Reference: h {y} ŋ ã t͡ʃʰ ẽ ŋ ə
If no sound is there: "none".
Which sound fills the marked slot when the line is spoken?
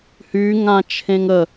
y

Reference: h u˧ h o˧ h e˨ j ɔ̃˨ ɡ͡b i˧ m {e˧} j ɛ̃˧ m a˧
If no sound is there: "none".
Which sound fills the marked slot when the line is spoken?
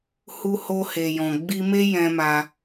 e˦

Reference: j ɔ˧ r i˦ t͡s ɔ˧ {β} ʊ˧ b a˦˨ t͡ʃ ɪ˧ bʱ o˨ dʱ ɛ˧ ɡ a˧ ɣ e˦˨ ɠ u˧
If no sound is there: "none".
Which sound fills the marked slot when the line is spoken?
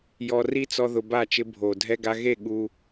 ð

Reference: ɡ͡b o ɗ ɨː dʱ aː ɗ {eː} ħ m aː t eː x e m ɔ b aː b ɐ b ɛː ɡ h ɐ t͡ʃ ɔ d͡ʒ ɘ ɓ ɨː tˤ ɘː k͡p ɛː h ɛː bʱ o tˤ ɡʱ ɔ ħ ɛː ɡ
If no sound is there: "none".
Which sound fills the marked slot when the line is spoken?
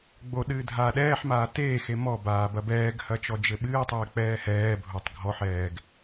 ɛː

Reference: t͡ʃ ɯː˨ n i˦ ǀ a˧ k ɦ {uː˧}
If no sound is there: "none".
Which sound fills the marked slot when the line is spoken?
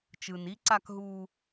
uː˧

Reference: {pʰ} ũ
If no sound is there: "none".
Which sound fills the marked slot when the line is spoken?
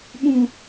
ɓ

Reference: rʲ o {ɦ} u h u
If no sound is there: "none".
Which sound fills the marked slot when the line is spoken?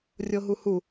ɦ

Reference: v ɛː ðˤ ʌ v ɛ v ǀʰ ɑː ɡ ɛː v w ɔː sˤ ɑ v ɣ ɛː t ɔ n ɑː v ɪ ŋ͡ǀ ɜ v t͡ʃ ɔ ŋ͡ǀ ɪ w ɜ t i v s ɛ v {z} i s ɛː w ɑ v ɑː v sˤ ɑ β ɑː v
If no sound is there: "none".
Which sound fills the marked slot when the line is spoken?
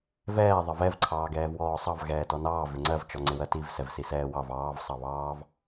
s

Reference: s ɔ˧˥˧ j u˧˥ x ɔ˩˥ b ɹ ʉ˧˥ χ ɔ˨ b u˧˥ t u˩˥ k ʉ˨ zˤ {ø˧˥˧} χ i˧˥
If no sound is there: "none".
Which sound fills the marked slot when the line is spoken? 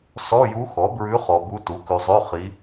ø˧˥˧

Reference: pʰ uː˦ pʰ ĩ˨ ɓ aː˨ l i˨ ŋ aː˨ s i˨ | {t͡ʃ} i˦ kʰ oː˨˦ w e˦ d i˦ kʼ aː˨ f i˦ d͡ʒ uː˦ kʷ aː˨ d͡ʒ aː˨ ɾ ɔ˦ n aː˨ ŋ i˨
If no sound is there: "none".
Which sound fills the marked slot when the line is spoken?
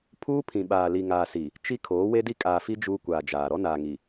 t͡ʃ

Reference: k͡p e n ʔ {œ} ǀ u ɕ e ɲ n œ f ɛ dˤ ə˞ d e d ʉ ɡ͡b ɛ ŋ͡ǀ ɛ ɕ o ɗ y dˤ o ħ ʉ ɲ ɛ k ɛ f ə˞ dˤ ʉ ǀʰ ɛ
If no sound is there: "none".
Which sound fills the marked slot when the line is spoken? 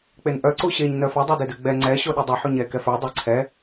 œ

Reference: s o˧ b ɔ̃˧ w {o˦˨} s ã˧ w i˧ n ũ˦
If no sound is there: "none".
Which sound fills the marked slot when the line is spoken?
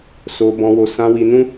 o˧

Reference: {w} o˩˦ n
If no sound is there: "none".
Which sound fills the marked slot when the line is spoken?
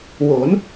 w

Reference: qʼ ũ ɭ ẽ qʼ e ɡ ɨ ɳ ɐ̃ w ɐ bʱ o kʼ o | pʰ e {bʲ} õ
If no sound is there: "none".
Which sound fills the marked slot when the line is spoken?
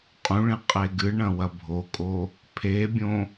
bʲ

